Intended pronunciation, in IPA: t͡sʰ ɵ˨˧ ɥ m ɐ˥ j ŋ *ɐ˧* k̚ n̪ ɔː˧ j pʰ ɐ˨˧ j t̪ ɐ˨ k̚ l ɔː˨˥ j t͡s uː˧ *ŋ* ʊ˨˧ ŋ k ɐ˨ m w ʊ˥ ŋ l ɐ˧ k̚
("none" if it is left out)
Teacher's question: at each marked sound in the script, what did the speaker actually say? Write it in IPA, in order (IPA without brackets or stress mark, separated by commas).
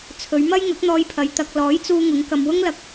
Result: ɐ˨˥, ŋ